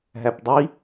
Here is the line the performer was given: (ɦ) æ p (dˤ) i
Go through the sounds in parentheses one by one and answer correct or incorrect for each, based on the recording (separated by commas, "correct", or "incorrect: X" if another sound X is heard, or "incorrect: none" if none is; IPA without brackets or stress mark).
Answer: correct, correct